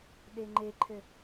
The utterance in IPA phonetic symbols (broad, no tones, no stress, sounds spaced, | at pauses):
ɗ e ŋ͡ǃ e ǃʰ ɘ